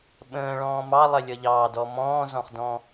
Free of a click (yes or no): yes